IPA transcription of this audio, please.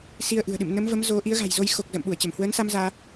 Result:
s i˧ ə̯ ʔ ɨ̤˨˩ ə̯ ɗ ɨ̰˧˨ m n ə˨˦ m v ə˨˦ m z o˨˦ ʔ i˨˦ ə̯ ɣ a̤˨˩ j z o˧ j x o˨˩ k̚ z ə̰ː˧˨ m ɓ u˧˩ ə̯ t͡ɕ ə˧˩ m h w əː˨˦ n s a˧ m z aː˧

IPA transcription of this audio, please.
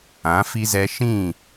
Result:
ã˨˦ f i˦ z ɛ˦ ʃ ĩ˦˨

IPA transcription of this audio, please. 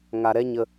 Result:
ŋ a˧ ɾ ɛ˦ ɲ ə˧

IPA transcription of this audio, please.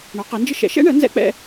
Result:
ɳ ɒ˨˥ q ɛ˨˥ n d͡ʒ ə˥ ʃ ɛ̰˨˥ ʃ ɛ̰˥ ɳ ɜ˨˥ n z ɛ̰˥ k͡p ɛ̰˥

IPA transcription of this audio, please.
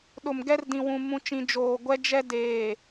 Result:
ɗ ʊ˨ m ɡ ɛ˦ r d ĩ˨ w ũ˨ m ũ˨ t͡ʃ ĩ˨ d͡ʒ oː˨ ɡʷ ɛ˦ d͡ʒ ɛ˦ d eː˨

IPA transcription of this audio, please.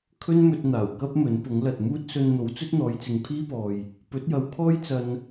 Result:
kʰ ɵ˥ n m ɵ˧ t̚ n̪ aː˨˩ w k ɐ˥ p̚ m ɵ˨˥ n p ʊ˨˥ ŋ l ɐ˨ t̚ m uː˥ t̚ s ɵ˧ n n̪ o˨˥ w t͡s ɵ˥ t̚ n̪ ɔː˨˧ j t͡s ɪ˨˧ ŋ pʰ iː˥ p ɔː˨ j | p ɵ˨˥ t̚ j ɐ˨ w kʰ ɔː˥ j t͡s ɐ˧ n

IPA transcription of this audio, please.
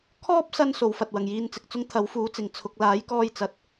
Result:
kʰ ɔː˥ p̚ s ɐ˧ n s o˨˧ w f ɐ˨ t̚ w ɐ˨˩ ŋ j iː˧ n t͡s ɪ˨ k̚ t͡s ʊ˥ ŋ t̪ʰ ɐ˨˥ w f uː˨˥ t͡s ɪ˨˩ ŋ t͡sʰ ʊ˨ k̚ l aː˨˥ j k ɔː˧ j t͡s ɐ˨ t̚

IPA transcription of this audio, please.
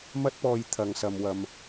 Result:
m ɐ˥ t̚ p ɔː˧ j t̪ʰ ɐ˨ ŋ s ɐ˨ m w ɐ˨ m

